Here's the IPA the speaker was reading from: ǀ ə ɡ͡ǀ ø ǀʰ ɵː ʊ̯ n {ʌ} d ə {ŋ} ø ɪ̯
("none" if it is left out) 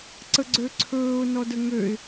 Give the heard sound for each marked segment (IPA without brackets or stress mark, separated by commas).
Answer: ɔ, ŋ